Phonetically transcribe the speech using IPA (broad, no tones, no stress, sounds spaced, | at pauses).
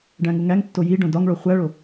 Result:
ɖ æ̃ ŋ u ŋ æ ŋ tː o j i ɖ õ d ɒ ŋ ɭ o χʷ æ ɭ o